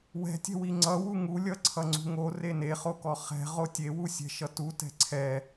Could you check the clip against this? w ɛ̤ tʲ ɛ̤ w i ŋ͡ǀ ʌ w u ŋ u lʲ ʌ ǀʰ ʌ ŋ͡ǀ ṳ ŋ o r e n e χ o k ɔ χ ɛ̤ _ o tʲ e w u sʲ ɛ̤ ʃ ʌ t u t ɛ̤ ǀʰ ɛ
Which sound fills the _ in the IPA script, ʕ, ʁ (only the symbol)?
ʁ